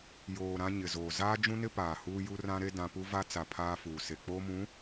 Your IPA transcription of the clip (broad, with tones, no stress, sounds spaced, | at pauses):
j oː˨ ɾ ã˦ ɲ ɪ˨ z oː˨ z aː˦ d͡ʒ ũ˦ n ɪ˦ p aː˨ h uː˦ j u˦ r ã˦ ɾ e˦ d ã˦ p u˦ v a˦ t͡s a˨ pʰ aː˦ f uː˨ s e˨ k͡p oː˦ m ũ˨˦